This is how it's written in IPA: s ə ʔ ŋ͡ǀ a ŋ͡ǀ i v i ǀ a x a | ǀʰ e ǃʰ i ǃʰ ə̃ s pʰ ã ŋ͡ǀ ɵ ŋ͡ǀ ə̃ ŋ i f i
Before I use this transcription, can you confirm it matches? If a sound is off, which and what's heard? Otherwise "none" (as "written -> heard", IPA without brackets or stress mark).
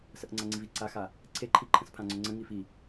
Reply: none